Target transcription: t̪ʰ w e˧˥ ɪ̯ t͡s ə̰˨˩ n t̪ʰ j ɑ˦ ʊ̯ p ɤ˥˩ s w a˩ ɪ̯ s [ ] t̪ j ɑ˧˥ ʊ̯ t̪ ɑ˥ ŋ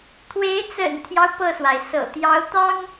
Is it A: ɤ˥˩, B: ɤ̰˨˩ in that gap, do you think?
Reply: B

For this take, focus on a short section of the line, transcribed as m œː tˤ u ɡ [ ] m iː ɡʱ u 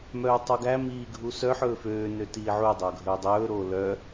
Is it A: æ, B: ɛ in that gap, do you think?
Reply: A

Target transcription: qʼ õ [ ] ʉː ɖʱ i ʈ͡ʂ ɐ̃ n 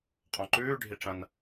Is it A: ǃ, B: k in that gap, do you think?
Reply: A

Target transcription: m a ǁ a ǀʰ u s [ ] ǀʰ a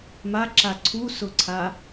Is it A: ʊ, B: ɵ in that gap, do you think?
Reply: A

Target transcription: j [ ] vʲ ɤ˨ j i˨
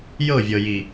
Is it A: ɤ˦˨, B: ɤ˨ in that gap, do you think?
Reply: A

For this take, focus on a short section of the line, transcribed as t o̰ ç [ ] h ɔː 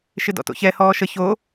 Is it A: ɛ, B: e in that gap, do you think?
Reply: A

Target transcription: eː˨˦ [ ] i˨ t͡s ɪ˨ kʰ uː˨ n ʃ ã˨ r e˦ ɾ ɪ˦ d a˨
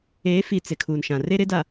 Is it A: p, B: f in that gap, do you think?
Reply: B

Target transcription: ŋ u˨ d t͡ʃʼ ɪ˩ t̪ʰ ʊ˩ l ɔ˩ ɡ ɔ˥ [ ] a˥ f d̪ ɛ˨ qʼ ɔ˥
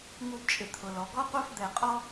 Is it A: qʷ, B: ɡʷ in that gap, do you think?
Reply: A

